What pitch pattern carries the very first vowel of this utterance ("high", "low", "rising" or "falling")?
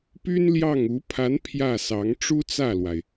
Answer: high